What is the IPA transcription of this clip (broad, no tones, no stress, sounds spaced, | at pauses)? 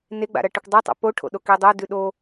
n e ɡ͡b a̰ ɾ ɐ ʈ ɨ kʷ dˤ e tˤ a̰ p o ʈʰ o̰ ɗ o k i dˤ o d ʉ ɗ o